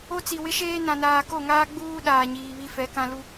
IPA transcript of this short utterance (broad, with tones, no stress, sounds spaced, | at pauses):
o˦ t͡s i˨ w ɪ˦ ʃ eː˦ n ã˨ n aː˨ k o˦˨ ŋ aː˦ ɡ͡b uː˦ ɗ aː˨ ɲ iː˨ β i˦ f ɛ˨˦ k ã˦ l u˦